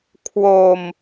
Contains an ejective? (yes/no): no